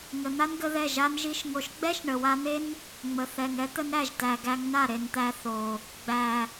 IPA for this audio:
ŋ ə˨ n̪ a˦ n ɡ ə˧ ð ɛ˦˨ ʒ a˦ n ʒ i˦ ʃ ŋ o˧ ʃ ɡ͡b ɛ˦ ʃ ɳ ə˨ w a˧ n̪ e˦ n | ŋ͡m ə˨ θ ɛ˨ ŋ ɛ˦ t̪ ə˦ n ɾ æ˦˨ ʒ t æ˨ ɡ æ˧ ŋ n a˦˨ ɾ e˨ n t̪ æ˧ θ o˨ | ɡ͡b æ˨

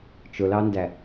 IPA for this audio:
t͡ʃ ʊ l ɑ n d æ

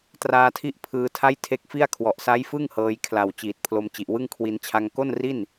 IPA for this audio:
t r aː˧ tʰ i˦˥ ʔ pʰ ɯː˧ tʰ a˥˩ j tʰ e˦˥ k̚ f i˥˩ a̯ kʰ w ɔ˨˩ ʔ s a˦˥ j f ɯ˥˩ ŋ h ɤː˧ j kʰ l a˨˩ w t͡ɕ iː˨˩ t̚ pʰ l o˧ m t͡ɕ i˨˩ ʔ w ɯ˥˩ ŋ kʰ w i˧ n t͡ɕʰ a˧ ŋ k o˥˩ n r i˥˩ n

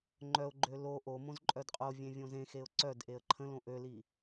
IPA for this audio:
ŋ͡ǃ œ ʊ̯ ɡ͡ǃ ø l o ʔ o m õ z ǃʼ œ d qʼ o vʲ ẽ vʲ õ z ẽ x e ʊ̯ ǀ œ d ʔ e ə̯ ǃʰ ə̃ l õ ʔ ø l i

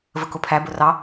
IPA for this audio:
v ə k ʊ pʰ æ b ʊ r ɑ

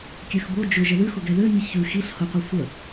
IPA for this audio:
kʲ ø x b o d͡ʒ ʊ ʒ ə ð ʉ x ʊ ɡ ɛ ð ø ɲ i ç ʉ x i ɬ h ʊ qʷ i sʷ ə

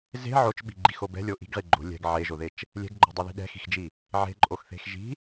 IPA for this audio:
z e̤ ʕ o t͡ʃ ɓ i̤ ɡ͡ǃ i x o b ɛ̤ lʲ o ʔ i̤ ɡ ʁ i ɡ͡ǃ o̤ lʲ ɛ̤ ɡ ʕ e ʒ o ð e t͡ʃ | lʲ ɛ̤ ɡ ɡ͡ǃ o̤ dˤ ɛ ð i̤ ɗ ɛ̤ x i̤ x d͡ʒ i | ʕ e̤ ǃʼ o x θ e̤ x ʒ i̤

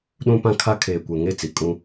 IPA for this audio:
ɗ ũ˦ p ã˦ kʰ a˦ kʰ eː˨ kʷ ɛ˨ ŋ e˦˨ t͡s i˨ kʼ ũ˦

